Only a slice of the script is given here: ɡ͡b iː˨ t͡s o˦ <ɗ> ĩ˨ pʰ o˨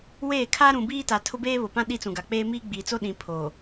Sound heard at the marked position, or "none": ɗ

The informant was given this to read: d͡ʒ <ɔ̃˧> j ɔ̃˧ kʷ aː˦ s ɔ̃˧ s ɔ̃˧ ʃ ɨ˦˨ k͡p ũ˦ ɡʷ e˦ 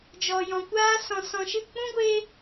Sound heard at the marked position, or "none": ɔ˧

